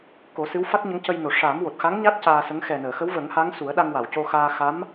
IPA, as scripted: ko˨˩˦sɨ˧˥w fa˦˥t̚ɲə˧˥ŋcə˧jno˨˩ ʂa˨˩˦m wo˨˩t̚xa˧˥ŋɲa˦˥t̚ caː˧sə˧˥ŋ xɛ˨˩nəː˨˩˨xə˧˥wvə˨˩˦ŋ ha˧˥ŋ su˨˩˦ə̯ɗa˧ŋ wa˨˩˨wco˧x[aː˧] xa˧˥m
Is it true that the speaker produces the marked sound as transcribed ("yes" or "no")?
yes